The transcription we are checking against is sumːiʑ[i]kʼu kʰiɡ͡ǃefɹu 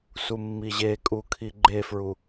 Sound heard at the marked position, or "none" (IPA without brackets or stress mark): e